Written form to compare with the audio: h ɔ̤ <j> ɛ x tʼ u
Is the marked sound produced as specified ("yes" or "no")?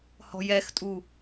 yes